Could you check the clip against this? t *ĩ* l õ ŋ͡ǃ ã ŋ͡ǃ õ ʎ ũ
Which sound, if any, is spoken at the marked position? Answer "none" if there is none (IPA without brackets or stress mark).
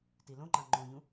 i